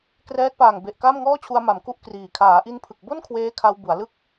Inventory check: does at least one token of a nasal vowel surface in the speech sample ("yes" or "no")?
no